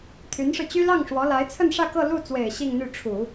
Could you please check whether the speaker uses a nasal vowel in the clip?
no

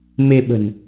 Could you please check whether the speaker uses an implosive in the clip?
yes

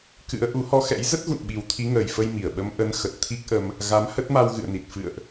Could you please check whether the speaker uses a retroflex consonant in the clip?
no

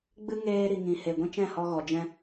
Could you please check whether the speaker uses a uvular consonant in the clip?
no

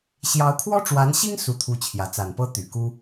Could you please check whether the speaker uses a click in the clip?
no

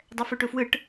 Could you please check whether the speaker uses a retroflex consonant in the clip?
yes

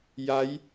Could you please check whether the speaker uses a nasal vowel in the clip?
no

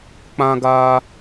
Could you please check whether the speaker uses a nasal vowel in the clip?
yes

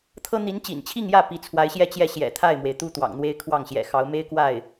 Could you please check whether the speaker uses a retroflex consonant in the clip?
no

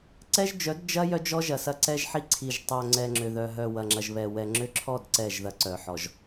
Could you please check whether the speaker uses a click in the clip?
yes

